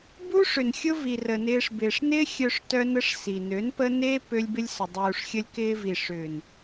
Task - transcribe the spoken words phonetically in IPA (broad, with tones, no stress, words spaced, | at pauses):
bu˦ʂʏ˨n xʲʊ˦vi˨rə˨nɪː˧ʂ bɪː˨ʂnɪː˦ xʲœ˧ʂtœ˧nə˧ʂ si˨nø˨˦npə˦ ne˧ pø˧lʲbɪ˧lʲsʏ˨ dˤuː˨ʂxʲə˧lʲ kɪː˧vi˨ ʂʏː˨n